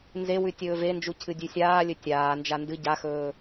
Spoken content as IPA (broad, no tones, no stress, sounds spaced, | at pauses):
n z e w ʉ tʲ ɵː v e n d͡ʒ u cʰ ɨ dʲ ʉ sʲ aː lʲ ɵ tʲ aː n d͡ʒ a n d ɨ ɟ a x ɵː